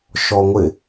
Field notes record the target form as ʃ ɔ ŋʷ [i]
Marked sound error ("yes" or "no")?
yes